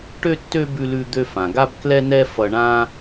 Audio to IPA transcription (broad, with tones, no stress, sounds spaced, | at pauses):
ʈ ø˥ tː ø˥ b ʉ˧ l ʉ˧ d̪ ø˧ f ã˩ ɡ a˥ b k l ɛ˥ n ɛ˥ f ʌ˧ ɳ ã˥